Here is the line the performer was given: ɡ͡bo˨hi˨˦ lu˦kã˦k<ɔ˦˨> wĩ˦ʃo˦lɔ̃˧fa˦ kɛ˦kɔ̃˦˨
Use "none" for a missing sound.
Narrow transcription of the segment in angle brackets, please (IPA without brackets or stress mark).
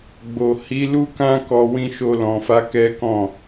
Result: ɔ˧